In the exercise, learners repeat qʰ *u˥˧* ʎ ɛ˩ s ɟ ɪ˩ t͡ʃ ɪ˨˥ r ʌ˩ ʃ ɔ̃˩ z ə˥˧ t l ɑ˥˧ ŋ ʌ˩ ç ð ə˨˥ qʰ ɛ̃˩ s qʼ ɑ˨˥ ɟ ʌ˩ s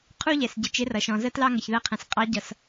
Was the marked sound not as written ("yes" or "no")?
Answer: no